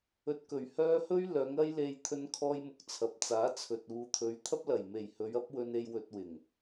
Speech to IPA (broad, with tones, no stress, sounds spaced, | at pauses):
ɵ˧ t̚ k ɵ˨˩ ɥ h œː˥ h ɵ˥ ɥ l œː˨˧ ŋ ɐ˥ j l e˧ j t̪ʰ ɵ˥ n kʰ ɔː˥ j m ʊ˨ k̚ t͡sʰ ɐ˨ p̚ t͡s aː˨˥ t͡sʰ ɵ˨ t̚ uː˨ t̪ʰ ɵ˨˧ ɥ t̪ʰ ɐ˥ p̚ l ɐ˨˩ j m e˨˩ j h ɵ˨˧ ɥ ɐ˥ p̚ w ɵ˧ n e˧ j w ɵ˧ t̚ w ɪ˨˩ ŋ